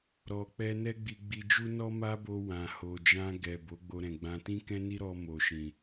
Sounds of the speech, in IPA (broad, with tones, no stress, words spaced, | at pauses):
ɾɔ˧k͡pɛ˦ nɛ˦ɡ͡bi˧ɡ͡bi˧d͡ʒu˦ nɔ˦ma˦bo˧ wã˨ho˨ d͡ʒã˧ɡɛ˨ bo˨˦ɡ͡bo˧ɾɛ̃˨ɡ͡bã˧ tĩ˦kɛ̃˦ni˦ɾɔ˧ mo˨ʃĩ˨